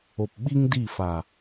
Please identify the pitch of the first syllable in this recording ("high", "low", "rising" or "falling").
low